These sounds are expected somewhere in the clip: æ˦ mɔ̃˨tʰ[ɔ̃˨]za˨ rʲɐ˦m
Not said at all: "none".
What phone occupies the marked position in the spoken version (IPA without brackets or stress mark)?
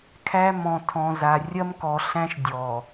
ɔ̃˨